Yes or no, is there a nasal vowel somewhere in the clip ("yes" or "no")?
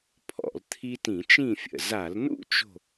yes